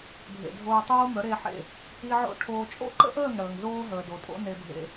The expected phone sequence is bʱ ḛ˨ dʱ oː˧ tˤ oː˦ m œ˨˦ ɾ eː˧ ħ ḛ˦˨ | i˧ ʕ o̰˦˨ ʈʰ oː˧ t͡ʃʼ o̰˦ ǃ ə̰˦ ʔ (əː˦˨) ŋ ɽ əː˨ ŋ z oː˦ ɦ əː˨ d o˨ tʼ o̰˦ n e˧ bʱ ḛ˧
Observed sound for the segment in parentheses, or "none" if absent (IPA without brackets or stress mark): əː˦˨